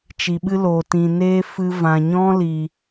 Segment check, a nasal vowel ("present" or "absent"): present